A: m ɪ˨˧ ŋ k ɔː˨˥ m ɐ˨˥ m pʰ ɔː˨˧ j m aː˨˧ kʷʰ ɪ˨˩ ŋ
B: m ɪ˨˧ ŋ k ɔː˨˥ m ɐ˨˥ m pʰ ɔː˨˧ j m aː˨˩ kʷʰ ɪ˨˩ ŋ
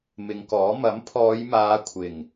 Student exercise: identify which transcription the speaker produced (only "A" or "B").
A